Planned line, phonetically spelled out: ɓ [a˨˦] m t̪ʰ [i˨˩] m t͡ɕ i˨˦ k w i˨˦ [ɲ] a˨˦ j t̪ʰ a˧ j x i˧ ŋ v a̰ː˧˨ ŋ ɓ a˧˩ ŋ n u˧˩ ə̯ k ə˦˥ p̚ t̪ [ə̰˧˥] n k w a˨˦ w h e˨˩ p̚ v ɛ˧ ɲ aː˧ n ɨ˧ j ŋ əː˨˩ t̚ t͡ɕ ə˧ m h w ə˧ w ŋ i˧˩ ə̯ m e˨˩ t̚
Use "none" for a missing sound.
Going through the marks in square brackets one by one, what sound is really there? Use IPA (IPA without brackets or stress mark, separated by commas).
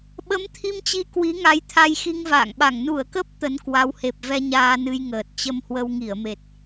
ə˨˦, i˧, ŋ, ə˨˦